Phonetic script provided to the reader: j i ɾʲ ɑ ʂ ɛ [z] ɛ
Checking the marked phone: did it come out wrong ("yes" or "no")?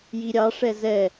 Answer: no